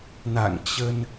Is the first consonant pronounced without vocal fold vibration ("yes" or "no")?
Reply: no